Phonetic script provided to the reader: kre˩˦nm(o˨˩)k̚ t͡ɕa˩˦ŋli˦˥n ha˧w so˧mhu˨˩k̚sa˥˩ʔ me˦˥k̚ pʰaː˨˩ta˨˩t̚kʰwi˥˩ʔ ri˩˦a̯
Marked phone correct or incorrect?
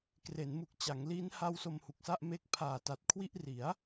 incorrect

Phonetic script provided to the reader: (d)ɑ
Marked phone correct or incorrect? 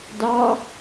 correct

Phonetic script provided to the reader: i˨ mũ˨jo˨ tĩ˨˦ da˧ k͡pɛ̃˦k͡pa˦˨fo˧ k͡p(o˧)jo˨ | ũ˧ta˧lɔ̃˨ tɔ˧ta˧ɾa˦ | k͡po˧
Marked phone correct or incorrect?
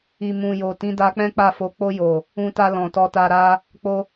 correct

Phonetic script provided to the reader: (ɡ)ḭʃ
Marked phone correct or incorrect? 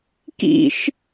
incorrect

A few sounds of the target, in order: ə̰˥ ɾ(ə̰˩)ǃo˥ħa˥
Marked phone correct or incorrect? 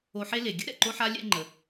incorrect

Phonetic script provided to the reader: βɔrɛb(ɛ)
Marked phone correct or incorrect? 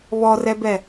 correct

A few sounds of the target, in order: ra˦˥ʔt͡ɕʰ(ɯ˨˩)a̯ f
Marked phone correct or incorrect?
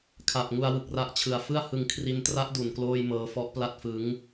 correct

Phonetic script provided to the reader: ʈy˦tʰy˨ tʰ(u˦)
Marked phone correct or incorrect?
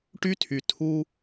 correct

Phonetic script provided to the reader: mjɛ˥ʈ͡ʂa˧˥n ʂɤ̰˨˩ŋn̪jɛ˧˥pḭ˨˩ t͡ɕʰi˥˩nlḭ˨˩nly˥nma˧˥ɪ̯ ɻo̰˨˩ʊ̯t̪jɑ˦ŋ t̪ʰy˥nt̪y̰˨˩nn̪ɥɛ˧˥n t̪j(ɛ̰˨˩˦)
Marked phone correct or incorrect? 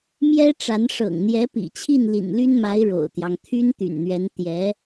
incorrect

